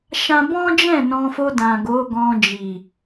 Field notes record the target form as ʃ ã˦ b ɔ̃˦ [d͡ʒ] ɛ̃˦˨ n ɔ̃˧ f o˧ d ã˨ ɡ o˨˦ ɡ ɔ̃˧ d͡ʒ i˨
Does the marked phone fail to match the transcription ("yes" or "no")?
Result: no